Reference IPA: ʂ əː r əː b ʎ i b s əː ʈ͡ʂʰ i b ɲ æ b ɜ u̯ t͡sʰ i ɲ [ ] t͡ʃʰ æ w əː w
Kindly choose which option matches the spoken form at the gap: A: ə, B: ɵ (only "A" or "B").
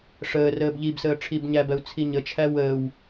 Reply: A